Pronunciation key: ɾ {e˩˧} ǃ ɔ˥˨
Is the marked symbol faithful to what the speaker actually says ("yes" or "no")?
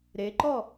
yes